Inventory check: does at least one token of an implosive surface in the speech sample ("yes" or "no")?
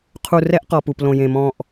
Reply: no